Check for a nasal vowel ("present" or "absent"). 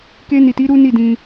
present